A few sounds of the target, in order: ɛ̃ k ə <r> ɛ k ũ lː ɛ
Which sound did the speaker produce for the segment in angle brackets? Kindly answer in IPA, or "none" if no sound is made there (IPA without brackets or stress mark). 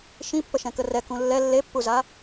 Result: r